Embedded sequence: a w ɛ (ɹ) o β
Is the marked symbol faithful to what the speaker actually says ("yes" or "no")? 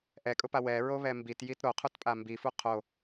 yes